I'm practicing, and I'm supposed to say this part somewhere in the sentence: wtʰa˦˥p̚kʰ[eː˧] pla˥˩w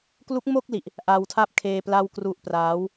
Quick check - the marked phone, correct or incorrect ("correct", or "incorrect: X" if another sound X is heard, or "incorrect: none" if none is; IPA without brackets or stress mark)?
correct